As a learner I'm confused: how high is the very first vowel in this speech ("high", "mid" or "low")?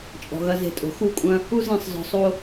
mid